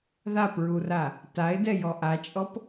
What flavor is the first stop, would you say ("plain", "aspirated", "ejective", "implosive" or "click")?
plain